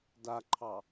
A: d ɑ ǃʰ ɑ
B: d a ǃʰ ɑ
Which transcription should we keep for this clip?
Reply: B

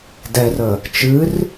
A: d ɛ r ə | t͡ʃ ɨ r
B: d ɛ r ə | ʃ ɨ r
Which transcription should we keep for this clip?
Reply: A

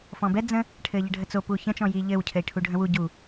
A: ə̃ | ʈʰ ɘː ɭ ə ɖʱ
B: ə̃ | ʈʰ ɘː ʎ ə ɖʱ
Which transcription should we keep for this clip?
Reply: B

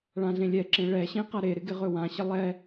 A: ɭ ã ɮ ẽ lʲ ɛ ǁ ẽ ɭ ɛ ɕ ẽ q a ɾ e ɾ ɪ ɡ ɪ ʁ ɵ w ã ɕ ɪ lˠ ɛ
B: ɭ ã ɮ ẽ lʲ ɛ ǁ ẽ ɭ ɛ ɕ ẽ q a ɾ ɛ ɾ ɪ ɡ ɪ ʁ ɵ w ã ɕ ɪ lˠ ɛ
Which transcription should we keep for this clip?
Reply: A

